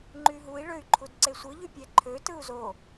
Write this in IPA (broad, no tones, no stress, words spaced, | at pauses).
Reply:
ŋ͡ǃyɦui̯ɭøy̯ǃʰud ǀesʷɯʎypʲæ ǃʰø tɯu̯zo